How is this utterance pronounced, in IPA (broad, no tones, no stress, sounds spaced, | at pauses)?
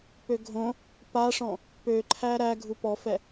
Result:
p ø ɡʱ õ | p a ʂ ɔ̃ | p ø ǃʰ æ ɾ æ ɡʱ u p ɔ f ɛ